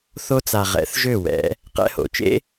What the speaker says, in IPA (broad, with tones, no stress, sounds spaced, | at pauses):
θ o˧ t͡s a˨ ʁ ɛ̰˨˦ θ ʒ ø˦˨ w ɛ̰˨˦ | q ɛ̰˧ h o̰˨ t͡ʃ ḛ˦